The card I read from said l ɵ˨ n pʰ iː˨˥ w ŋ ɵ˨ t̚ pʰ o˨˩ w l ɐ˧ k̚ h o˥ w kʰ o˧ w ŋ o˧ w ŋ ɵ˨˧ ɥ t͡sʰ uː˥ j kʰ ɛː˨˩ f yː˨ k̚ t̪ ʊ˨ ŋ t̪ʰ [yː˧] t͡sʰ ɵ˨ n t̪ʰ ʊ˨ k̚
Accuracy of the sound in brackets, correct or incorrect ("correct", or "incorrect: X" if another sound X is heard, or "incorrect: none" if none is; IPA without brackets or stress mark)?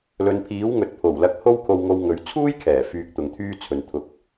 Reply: incorrect: yː˥